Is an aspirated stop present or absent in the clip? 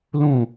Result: absent